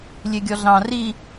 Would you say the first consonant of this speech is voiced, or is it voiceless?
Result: voiced